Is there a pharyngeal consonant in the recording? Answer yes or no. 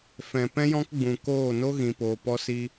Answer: no